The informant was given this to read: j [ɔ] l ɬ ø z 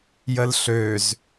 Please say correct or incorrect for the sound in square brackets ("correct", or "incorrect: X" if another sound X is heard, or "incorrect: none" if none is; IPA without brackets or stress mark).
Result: incorrect: ə